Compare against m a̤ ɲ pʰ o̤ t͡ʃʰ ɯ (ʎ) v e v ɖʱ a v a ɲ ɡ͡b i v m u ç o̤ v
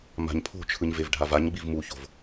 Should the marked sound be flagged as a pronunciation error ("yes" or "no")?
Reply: yes